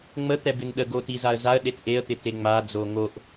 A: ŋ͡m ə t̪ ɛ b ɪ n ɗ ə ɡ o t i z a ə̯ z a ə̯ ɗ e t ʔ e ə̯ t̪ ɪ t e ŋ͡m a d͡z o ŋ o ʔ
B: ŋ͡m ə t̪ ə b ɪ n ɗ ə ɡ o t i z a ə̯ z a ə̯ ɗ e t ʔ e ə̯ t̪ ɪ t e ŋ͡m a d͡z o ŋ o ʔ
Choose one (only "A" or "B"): A